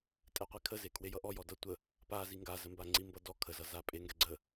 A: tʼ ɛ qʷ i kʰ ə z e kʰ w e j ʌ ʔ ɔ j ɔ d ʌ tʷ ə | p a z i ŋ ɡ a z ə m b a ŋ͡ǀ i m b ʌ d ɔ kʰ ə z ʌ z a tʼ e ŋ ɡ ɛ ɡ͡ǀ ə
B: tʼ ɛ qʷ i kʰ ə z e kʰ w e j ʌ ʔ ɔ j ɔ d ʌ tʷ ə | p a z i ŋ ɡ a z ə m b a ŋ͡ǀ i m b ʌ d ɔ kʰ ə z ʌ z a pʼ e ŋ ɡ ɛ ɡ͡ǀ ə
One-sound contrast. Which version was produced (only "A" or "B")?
B